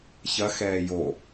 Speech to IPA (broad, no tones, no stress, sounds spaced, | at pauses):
ç ɐ x ɛː j o